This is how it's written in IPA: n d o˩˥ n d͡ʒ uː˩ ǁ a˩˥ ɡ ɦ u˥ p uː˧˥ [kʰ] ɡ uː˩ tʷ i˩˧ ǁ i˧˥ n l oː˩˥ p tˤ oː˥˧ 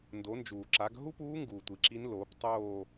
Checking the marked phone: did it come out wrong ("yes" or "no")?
yes